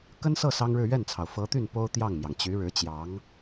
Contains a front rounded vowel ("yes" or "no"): yes